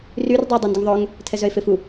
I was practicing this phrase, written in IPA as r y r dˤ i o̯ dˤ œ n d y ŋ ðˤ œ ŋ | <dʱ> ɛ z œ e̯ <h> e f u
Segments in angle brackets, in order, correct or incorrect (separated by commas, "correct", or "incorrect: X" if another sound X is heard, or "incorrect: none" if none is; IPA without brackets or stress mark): incorrect: tʰ, incorrect: f